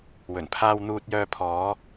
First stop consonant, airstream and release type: aspirated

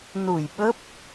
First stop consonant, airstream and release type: implosive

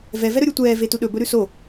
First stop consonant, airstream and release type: plain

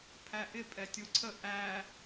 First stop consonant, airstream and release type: aspirated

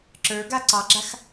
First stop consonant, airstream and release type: click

